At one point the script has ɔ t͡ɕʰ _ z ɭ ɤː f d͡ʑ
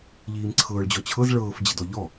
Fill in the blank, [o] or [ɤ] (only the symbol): ɤ